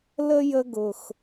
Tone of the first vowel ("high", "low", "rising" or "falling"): high